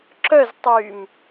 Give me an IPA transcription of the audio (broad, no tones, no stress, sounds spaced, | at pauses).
ǁ œ z tˤ yː m